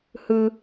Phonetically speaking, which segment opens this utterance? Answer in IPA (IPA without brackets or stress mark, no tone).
h